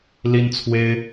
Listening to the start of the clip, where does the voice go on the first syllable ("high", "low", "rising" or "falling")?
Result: high